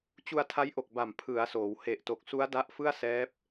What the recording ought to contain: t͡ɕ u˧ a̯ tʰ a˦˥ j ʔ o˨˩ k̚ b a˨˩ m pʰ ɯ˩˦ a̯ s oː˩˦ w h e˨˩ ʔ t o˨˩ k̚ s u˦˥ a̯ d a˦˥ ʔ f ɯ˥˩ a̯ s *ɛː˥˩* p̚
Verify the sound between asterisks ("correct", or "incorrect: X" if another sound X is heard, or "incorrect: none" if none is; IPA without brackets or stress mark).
incorrect: ɛː˦˥